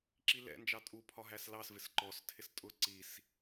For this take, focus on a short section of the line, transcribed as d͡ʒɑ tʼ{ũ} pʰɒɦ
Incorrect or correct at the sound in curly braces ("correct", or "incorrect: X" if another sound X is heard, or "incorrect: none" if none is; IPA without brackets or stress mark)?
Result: incorrect: u